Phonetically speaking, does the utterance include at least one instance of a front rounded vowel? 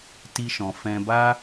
no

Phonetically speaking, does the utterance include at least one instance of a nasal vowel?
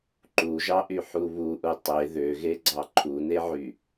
no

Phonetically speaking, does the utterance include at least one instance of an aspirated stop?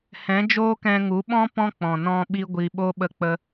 no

